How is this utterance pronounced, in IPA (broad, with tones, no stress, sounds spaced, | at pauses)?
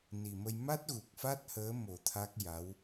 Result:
n i˨˩ m ə˧ j m a˦˥ t̚ ɣ u˨˩ k̚ f a˦˥ t̚ h əː˧˥ m o˨˩˦ t̪ʰ a˦˥ k̚ j a˧˥ w